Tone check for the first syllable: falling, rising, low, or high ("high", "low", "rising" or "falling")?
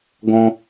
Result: high